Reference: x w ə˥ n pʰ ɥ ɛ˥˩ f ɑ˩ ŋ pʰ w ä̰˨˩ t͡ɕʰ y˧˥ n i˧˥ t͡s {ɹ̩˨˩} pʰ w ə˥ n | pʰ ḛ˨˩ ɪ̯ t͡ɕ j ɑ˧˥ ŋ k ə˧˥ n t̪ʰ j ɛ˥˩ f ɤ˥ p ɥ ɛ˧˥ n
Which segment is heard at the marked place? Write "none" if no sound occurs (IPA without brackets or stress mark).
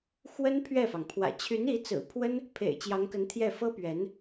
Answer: ɹ̩˨˩